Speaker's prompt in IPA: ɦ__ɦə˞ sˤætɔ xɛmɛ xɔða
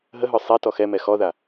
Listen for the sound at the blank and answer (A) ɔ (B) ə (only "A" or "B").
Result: B